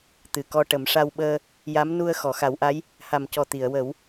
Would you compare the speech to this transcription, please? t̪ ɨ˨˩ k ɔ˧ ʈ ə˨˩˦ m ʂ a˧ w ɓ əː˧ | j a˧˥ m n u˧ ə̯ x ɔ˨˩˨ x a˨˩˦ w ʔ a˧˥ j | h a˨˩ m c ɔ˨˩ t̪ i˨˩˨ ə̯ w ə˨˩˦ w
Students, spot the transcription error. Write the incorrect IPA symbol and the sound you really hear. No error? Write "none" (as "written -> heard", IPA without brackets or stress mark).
none